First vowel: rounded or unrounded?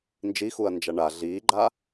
unrounded